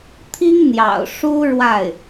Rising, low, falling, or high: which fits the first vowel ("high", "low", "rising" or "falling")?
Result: high